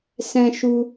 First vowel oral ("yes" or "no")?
no